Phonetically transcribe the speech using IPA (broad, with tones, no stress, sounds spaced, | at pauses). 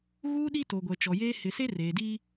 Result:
ɣ uː˦ ɗ i˦ t o˨ ɡʷ ɛ˨ t͡ʃ ɔ˨ j eː˦ h ɪ˨ s e˦ r eː˨ d i˦